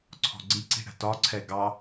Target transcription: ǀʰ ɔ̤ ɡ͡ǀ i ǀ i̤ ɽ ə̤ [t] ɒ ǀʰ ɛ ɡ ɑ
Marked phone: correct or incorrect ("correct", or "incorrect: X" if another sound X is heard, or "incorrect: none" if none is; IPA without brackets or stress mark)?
correct